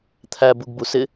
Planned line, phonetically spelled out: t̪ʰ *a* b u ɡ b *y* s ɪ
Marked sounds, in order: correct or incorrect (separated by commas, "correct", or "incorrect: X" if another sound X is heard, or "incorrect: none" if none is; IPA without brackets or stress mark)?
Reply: incorrect: æ, incorrect: u